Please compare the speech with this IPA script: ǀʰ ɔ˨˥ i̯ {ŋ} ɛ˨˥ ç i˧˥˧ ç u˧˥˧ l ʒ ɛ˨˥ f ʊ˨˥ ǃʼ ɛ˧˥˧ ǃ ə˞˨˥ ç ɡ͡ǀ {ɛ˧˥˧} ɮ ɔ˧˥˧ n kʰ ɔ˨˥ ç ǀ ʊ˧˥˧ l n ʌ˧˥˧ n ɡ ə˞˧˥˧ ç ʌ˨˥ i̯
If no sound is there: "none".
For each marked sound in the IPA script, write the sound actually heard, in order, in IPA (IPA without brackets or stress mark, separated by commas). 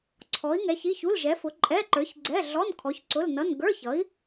ŋ, ɛ˧˥˧